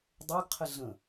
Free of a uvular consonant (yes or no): no